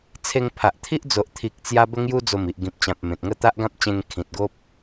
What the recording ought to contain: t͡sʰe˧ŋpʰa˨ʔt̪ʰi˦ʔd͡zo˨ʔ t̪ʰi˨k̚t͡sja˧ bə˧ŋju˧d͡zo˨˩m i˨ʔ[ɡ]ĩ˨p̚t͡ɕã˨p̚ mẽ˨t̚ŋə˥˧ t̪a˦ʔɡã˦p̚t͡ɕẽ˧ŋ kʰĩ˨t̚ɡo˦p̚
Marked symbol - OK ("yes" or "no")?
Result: yes